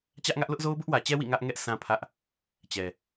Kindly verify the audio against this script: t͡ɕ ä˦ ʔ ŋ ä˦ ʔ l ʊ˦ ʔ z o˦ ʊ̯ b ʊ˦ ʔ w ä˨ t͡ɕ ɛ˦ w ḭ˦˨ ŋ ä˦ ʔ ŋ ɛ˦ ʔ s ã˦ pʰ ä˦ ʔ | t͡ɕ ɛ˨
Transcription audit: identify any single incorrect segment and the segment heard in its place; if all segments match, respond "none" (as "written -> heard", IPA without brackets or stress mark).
none